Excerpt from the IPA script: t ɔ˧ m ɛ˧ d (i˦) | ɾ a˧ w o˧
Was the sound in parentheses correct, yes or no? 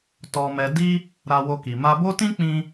yes